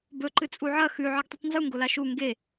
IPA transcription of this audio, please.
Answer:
b ɵ ǃ ɨ t͡sʼ u ʕ ɐ x ʉ ʕ ɨ ɡ tˤ u tˤ n z u ŋ ɡ o l a ʃ u ŋ ɡ e

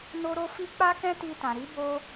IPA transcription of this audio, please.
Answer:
n o˦ ɾ o˦ f i˦ k͡p a˦ k ɛ̃˦ t i˧ t ã˨ ɾ i˨˦ b o˧

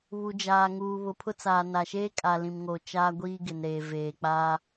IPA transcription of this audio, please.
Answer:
β u˨ d͡ʒ aː˨ ŋ uː˨ β ʊ˨ pʰ ʊ˦ t͡s aː˨ n a˨ ʃ eː˦ kʼ a˨ l ĩ˨ m ŋ o˨ t͡ʃ aː˦ ɡʷ iː˦ ɡ ɪ˨ n ɾ eː˨ v eː˨ k͡p aː˦

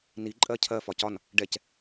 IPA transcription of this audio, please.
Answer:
n i ǃʼ ɜ cʰ ɜ f ɒ c ɒ n | ɖ ɛ c

